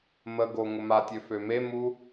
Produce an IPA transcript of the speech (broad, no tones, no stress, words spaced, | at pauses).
məɡo ŋʊmatʲø fømemu